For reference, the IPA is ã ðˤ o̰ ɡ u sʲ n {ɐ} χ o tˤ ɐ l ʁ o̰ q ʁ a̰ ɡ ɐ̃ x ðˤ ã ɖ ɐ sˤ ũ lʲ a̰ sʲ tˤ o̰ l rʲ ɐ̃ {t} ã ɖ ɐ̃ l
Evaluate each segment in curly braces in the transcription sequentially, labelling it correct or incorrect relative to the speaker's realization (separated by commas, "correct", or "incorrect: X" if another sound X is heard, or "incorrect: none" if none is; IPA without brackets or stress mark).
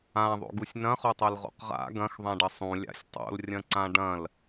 incorrect: ɐ̃, incorrect: ǀ